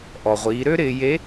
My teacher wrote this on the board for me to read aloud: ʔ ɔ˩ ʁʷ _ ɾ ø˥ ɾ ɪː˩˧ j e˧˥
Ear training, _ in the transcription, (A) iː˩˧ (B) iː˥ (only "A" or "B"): A